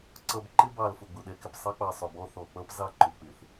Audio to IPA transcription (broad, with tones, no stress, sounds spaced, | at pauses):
ǀ ʌ˨ b ǃ ɪ˦ b ɑ˨ l f ʊ˨ ɡ͡b ʊ˨ ɗ ɛ˨ k ɪ˨ p sˤ ɑ˦ k͡p ɑ˨ sˤ ʊ˨ b ɔ˦ θ ɔ˨ k͡p ʌ˦ p z ɑ˦ ǃ ʊ˨ k͡p ɪ˨ θ